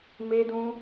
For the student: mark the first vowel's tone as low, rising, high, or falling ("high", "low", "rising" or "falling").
high